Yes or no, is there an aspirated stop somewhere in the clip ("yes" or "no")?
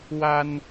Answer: no